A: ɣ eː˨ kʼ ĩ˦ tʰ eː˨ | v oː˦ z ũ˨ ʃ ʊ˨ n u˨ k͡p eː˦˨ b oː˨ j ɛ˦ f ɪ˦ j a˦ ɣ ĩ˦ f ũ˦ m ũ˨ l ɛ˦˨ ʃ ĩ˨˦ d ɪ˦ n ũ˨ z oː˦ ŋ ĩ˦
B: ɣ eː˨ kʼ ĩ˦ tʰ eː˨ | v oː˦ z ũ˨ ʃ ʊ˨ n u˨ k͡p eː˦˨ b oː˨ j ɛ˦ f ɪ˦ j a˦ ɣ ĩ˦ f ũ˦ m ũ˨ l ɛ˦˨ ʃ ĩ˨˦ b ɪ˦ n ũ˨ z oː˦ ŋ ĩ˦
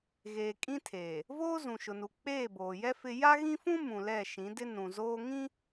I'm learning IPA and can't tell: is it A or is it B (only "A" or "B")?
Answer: A